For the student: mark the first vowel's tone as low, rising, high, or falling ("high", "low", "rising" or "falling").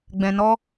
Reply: low